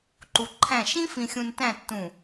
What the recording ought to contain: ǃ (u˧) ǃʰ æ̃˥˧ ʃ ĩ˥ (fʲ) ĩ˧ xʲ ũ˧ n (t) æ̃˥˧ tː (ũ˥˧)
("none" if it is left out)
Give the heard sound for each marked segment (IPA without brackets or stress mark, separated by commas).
u˧, f, t, ũ˧˩